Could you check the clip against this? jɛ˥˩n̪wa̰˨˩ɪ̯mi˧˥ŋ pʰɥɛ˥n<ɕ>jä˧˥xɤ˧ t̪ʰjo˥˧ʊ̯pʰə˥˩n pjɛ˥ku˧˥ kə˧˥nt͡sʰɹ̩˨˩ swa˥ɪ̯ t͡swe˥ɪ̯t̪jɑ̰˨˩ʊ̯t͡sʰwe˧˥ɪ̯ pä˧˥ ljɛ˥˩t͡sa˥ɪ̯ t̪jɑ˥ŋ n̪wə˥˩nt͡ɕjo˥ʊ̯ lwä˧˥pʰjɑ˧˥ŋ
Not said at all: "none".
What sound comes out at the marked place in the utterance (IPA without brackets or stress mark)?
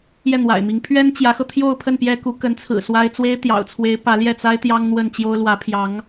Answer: t͡ɕ